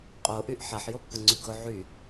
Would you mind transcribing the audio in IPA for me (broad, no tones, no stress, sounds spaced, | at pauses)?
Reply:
qʼ o ʔ y ʔ ħ a ħ j o pː ʊ ŋ͡ǀ y ɡ ʊ ʕ y